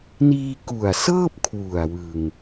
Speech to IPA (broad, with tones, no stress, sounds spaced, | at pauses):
n iː˧ k u˨˩ a̯ s ɤː˥˩ p̚ kʰ w u˨˩ a̯ w ɯ˧ ŋ